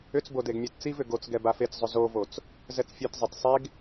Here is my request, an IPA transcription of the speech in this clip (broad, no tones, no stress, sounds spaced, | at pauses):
ʏ t͡s b o d e ɡ mʲ e t t͡s i v ʏ ɡ o t͡s ɡ ɛ b a f e t͡s zˤ ʏ z o v o t͡s | z ɛ t͡s fʲ e t zˤ e t sˤ e ɡ